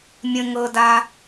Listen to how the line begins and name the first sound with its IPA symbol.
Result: mʲ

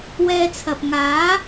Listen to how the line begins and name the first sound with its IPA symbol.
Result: w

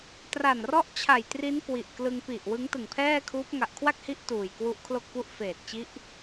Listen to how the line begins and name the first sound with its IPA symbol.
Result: t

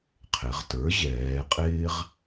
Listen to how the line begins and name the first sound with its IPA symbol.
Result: qʰ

